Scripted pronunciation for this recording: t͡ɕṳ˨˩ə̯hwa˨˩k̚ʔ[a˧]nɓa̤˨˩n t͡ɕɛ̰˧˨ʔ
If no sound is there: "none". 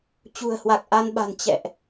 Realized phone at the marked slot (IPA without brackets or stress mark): a˧